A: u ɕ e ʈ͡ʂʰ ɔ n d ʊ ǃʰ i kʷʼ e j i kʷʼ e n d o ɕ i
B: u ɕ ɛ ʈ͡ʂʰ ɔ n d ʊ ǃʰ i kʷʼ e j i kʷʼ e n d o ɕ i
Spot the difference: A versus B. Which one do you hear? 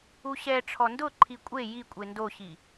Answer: B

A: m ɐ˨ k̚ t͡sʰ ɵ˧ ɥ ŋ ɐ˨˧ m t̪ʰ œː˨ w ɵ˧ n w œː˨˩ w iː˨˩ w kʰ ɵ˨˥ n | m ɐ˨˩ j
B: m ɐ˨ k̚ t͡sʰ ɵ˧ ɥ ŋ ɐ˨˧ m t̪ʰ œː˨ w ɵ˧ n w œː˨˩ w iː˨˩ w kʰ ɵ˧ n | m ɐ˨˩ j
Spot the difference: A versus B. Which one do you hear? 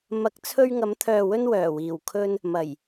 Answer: B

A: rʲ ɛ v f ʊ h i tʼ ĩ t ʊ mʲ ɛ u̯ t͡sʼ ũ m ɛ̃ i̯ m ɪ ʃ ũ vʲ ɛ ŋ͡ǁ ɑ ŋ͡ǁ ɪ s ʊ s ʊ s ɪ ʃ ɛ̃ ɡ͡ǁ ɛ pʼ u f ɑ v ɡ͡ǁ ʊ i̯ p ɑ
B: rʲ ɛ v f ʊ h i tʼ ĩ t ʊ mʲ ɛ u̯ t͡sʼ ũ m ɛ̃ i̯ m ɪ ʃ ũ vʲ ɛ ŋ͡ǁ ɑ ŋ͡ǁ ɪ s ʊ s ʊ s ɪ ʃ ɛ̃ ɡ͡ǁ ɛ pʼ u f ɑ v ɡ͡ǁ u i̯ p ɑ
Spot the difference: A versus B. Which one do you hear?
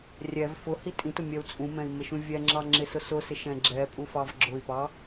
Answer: A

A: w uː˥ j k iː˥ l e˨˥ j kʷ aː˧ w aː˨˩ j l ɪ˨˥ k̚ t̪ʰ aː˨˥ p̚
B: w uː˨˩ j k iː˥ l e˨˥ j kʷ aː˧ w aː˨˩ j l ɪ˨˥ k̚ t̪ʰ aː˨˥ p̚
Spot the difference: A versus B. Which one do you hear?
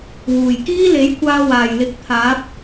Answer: B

